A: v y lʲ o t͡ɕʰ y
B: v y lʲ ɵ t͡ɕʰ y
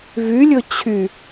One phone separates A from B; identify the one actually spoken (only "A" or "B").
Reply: B